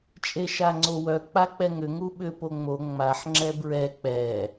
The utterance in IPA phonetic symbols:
t͡ʃʼeʃaŋ͡ǀowœ k͡pak͡pɛŋʏ ŋuɓʏ poŋ͡mo ŋ͡maħ ŋ͡ǁɛbɹɛ k͡pɛ

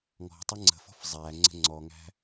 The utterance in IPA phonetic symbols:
ŋɔ̤tˤə ŋ͡ǀə̤fɔ̤f zˤæ ŋ͡ǀə̤ŋ͡ǀɔŋæ̤

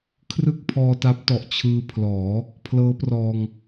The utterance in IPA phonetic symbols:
kʰrɯ˥˩k̚pʰɔː˧ta˦˥p̚tɔ˨˩ʔ t͡ɕʰɯː˧pʰlɔː˩˦ | pʰlɤː˦˥prɔː˧ŋ

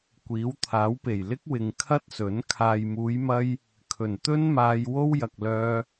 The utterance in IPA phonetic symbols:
kʷiː˨˥wt̪ʰaː˨˥wpe˨˩j lɪ˥k̚wɪ˨ŋ kʰɐ˥t̚sɵ˨˥n kʰaː˨jmuː˨˧jmɐ˧j | kʰɵ˨˩nt̪ɵ˥n maː˧j wo˥wjɐ˨k̚lœː˧

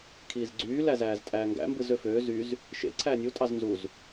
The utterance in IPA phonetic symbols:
kʰiːzɡ͡ǀyː læzæːztʼæːŋɡæ̰ mbɯzøføː zyz | ʃḛ ǀʰæːnʲu tʼɑznzuz

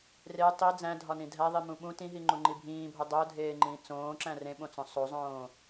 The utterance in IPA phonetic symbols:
re tˤi d͡zæ̃dʱɒnĩ dʱæðˤimũ ɓũ tĩɦiŋ͡ǃuŋ͡ǃi bʱĩːbʱo dˤodʱeːŋ͡ǃĩː t͡sõːǁæ̃ rẽɓõt͡sõ sˤozˤõː

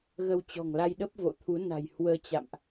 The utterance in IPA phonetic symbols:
ɣə˧wt͡ɕɔ̤˨˩ŋla˧jɗə˦˥p̚ vo̰˧˨t̪ʰu˨˦ na̤˨˩jhwəː˧ t͡ɕa̰˧˨mʔ

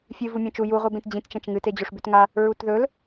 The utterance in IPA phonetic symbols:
fʲɨ vumʲɐ̃t͡ʃu ju ʁʷibẽtd͡ʑĩt t͡ʃɐ̃t͡ʃŋɨt ed͡ʑoʂbʉtŋa | ɹutðɵl

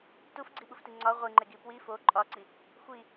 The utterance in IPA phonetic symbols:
tufɡ͡ǀiɓufti ŋ͡ǀɒ ʁʷiŋ͡ǃe ɡipwi fo ǃʼɒǀi | xʷi

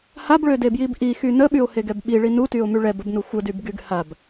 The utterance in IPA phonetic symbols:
habɭødebjib ʔixy nəɓyo̯heɡɛb ɓiɭi nutyo̯my ɭɛbəbnu xʷədybɡyɡ hab

